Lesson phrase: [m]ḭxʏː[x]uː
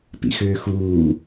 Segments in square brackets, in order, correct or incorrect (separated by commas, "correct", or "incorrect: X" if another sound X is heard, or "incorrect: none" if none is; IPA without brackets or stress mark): incorrect: p, correct